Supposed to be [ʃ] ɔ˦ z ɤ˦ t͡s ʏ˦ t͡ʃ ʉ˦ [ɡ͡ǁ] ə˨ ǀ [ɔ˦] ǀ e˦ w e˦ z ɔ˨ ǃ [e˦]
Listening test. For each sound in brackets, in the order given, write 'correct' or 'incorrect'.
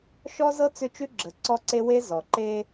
correct, correct, correct, correct

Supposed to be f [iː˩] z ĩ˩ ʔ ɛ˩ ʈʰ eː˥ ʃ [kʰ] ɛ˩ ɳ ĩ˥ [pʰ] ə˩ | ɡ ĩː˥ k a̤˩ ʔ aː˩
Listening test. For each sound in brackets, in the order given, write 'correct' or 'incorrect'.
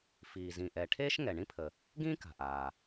correct, incorrect, correct

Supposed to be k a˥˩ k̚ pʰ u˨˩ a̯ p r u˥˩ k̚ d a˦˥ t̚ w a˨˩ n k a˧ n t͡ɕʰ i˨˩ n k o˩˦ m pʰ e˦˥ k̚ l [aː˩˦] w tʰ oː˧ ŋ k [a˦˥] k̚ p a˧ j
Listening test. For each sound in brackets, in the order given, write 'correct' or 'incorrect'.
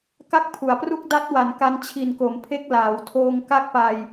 correct, correct

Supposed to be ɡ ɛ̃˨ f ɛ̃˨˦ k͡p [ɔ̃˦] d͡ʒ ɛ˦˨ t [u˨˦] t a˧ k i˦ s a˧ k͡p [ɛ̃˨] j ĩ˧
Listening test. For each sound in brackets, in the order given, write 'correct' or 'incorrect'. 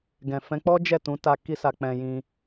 incorrect, incorrect, incorrect

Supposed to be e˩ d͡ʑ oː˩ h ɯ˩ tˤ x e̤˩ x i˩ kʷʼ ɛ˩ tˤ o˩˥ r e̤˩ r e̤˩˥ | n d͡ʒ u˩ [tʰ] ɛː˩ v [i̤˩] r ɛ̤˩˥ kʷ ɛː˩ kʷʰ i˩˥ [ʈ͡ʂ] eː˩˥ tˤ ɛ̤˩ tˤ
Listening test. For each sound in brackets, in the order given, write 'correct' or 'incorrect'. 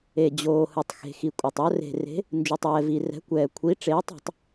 incorrect, incorrect, correct

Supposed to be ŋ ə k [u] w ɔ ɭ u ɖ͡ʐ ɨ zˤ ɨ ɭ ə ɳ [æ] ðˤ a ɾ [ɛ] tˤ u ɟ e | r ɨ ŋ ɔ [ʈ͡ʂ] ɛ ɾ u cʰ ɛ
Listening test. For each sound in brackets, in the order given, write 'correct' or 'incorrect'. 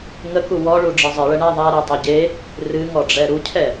correct, correct, correct, incorrect

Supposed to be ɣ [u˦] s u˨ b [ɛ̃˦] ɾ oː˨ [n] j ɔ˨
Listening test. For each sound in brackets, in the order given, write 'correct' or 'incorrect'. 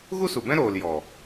correct, correct, incorrect

